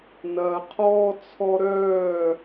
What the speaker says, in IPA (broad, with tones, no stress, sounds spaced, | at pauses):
n ɐː˨ qʰ ɔː˦ t͡sʰ ɔ˦ ɾ œː˦˨